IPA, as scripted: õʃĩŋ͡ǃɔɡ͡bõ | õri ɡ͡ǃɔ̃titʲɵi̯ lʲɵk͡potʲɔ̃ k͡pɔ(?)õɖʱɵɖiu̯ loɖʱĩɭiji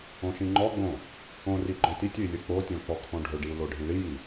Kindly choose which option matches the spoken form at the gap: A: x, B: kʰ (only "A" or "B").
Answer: B